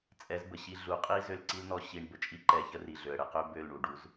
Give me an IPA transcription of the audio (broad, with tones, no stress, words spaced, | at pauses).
t͡sʼɛ˨˦zbə˨ ɕi˧ ɮu˨qʼi˦ zø˧lǀi˦lnɔ˧ ɕi˧ɳ bə˨t͡ʃʼi˦ǃɛ˧çə˦ ri˨ɮø˨ə̯ ɽə˧qø˦ bø˦˨lɳu˨ɖu˧z